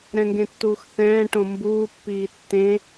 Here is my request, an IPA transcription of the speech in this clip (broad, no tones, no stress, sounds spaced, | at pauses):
ɾ ɛ̃ ŋ ɡ ẽ tː uː x θ ɛ̃ː ʈ õ m b uː pː iː tː ẽ